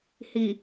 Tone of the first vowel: low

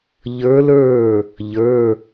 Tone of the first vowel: rising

